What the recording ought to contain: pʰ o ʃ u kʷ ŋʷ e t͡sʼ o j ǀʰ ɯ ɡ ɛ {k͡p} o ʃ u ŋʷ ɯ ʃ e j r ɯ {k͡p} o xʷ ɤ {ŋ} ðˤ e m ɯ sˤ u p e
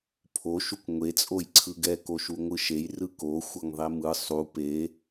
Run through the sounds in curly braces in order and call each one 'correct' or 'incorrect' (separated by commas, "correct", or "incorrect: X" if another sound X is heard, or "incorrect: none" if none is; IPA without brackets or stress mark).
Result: incorrect: k, incorrect: k, correct